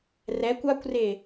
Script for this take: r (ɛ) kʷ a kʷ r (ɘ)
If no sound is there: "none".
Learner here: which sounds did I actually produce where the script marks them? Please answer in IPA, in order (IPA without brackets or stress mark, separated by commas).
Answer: ɛ, e